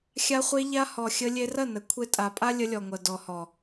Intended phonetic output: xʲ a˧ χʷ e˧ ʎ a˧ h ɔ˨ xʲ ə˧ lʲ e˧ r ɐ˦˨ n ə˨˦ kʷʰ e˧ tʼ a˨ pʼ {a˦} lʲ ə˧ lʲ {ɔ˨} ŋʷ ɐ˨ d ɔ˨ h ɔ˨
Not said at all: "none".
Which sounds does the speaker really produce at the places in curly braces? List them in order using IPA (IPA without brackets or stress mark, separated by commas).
a˦, ɔ˨